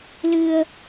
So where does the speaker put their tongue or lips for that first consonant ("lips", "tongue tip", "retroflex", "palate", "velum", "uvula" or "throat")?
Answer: tongue tip